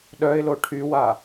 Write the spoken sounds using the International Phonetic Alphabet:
ɗ œ ɪ̯ l o ʈʰ y w a

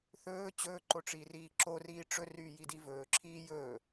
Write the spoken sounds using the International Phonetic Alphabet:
θ ɵː t͡ɕ ɵː ǃ o ʈ͡ʂ iː r iː ǁ o r iː ʈ͡ʂ ɵ r yː j i d i v ɵː ǁʰ iː j ɵː

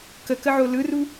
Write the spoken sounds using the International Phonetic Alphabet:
k ə k ə ʕ o l ɯ r u

